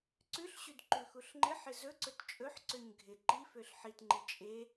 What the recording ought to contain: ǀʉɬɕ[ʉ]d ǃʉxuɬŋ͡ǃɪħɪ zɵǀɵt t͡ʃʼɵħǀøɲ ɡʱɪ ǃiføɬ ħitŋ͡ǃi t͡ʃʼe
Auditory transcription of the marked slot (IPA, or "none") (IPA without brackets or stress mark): ʉ